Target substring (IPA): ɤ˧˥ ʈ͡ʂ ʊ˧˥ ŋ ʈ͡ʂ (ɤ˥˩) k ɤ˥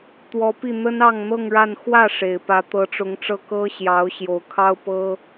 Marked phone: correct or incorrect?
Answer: correct